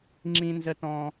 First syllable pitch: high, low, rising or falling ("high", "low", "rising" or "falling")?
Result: high